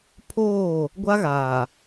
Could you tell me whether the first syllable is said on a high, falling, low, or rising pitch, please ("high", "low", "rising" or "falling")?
falling